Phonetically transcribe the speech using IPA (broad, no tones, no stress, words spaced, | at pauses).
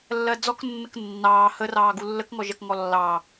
lːɜd͡zɔknːək nːɑː hərɑː ɡulːək ŋɔʒɜkŋɔlːɑː